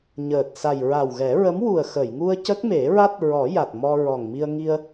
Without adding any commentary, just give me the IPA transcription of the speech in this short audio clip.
ɲ əː˨˩ t̚ s a˨˩ j ɹ a˨˩ w ɣ ɛ˨˩˦ ɹ ə˧˥ m w u˨˩ ə̯ x ə˨˩˨ j ŋ u˧ ə̯ c ə˦˥ k̚ m e˨˩˦ ɹ a˦˥ t̚ ɹ ɔ˨˩˦ j a˨˩ t̚ m ɔ˧ ɹ ɔ˨˩ ŋ m i˧ ə̯ ŋ i˧ ə̯

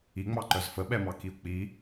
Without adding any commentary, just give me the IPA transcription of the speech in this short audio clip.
i ŋ͡m ɑ ǃ œ z f ə ɓ ɛ m ɑ k i u̯ k͡p i

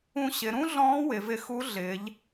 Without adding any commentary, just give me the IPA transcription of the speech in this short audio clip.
ũ˧ ɕ ɪ˩˧ ɾ ũ˥ ɮ ɔ̃ː˧˥ w ɪ˩˧ v ɪ˧ x u˧˥ ɮ ɪː˩˧ ʎ

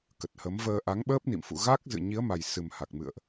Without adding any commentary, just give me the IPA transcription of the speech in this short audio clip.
k ə˨˩ t̚ h ə˨˦ m v əː˧ ʔ a˨˦ ŋ ɓ əː˦˥ p̚ n ḭ˧˨ m f ṵ˧˨ ɣ a˦˥ k̚ z ɨ̰˧˨ ɲ i˨˦ ə̯ m a˨˩ j s ɨ˨˩ m h a˨˩ k̚ m ɨ̰˧˨ ə̯ ʔ

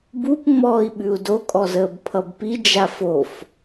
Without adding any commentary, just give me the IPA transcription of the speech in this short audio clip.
b u p ŋ͡m ɔː i̯ ɓ ʉ u̯ d o kʼ ɔ z əː b pʰ ʌ b p i d͡ʒ a f o f

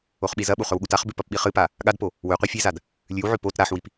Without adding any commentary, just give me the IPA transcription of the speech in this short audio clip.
o χ ɓ i z ɐ ɓ u χ ɵ w ɠ u t a χ b ʉ p ɐ p ɓ i χ ɨ p a | ɠ a d p o | w ʉ qʷ i fʲ e z a d | lʲ ʉ w ʕ ʉ p o t ɾ a ħ w i p

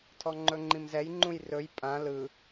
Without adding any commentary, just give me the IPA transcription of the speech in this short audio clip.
tʰ ɔ ŋ͡ǃ ɵ ŋ͡ǃ ĩ m z ɛ j ŋ͡ǃ ũ j r ɵ j pʼ ã l ɯ

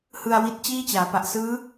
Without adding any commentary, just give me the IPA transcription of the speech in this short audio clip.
h ɯ˧ a̯ w i˦˥ t̚ t͡ɕ iː˥˩ t͡ɕ aː˩˦ p a˨˩ ʔ s ɯː˦˥

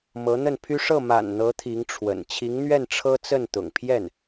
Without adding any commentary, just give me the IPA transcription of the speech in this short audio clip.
m ɤ˧˥ n̪ ə˥˩ n pʰ y˥ ʂ ɤ˥˩ m a̰˨˩ n n̪ ɤ˧˥ t̪ʰ i˧˥ ŋ ʈ͡ʂʰ w ə̰˨˩ n t͡ɕʰ i˧˥ ŋ n̪ ɥ ɛ˥˩ n ʈ͡ʂʰ ɤ˥ t͡s ə˥˩ n t̪ ʊ̰˨˩ ŋ pʰ j ɛ˥˩ n

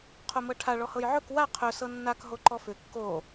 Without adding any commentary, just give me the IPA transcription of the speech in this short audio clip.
qʰ o m ɤ ʈʰ a ɭ ɔ h ɤ j ʕ ɵ k w a qʰ ɵ s ɤ nː a k ɦ o ǃ ɔ f ʏ kː o

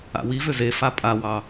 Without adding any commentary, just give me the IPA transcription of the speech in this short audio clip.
a̰ w i v ʏ z e f a pʼ a w ɑ

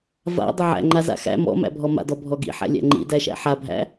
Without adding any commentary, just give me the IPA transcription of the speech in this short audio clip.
v a̰ dˤ ɪ ʕ æ̰ ŋ͡ǃ a z a̰ x æ̰ m ɔ̰ m æ̰ bʱ ɔ m a̰ d ɔ bʱ ɔ ɡ ḭ ħ æ̰ lʲ æ̰ ŋ͡ǃ ḭ d æ ʃ æ̰ ħ a bʱ æ̰

